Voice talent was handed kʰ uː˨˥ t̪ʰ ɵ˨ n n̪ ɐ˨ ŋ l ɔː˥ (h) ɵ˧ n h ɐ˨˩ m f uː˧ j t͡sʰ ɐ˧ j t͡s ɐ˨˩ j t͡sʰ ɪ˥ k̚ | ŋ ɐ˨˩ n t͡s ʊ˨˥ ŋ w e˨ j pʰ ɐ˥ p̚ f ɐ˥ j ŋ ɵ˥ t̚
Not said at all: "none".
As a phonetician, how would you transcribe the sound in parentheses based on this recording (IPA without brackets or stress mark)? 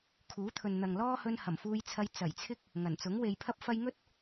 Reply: h